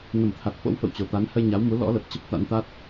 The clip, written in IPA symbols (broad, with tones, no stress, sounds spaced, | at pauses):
n ə˧˩ m t̪ʰ a˨˩ t̚ f o̰˧˥ w f ə̰˧˨ w t͡ɕ o˨˩ t̪ a˨˦ n h ə˧ j ɲ a˨˦ w m u˨˦ l ɔ̰˧˥ l ə˨˩ p̚ t͡ɕ ə˦˥ p̚ t̪ a̰˧˥ n t̪ a˦˥ t̚